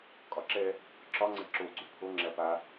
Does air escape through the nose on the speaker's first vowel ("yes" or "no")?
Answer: no